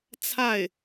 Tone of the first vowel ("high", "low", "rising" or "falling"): falling